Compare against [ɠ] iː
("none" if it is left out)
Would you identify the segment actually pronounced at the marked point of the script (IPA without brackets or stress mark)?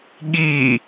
ɠ